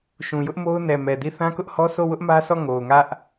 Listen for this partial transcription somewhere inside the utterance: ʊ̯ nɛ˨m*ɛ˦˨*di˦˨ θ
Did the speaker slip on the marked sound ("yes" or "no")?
yes